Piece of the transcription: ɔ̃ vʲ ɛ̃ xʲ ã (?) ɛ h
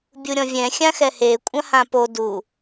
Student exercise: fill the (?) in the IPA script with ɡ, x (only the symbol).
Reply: x